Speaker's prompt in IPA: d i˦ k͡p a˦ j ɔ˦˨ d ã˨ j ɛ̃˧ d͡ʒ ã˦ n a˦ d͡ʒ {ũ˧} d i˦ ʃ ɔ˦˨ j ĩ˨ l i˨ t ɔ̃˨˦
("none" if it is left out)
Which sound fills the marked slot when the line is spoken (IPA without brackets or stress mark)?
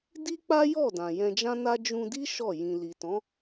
ũ˧